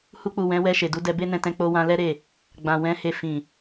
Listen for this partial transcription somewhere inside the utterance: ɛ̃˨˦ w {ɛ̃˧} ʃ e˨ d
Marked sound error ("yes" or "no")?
yes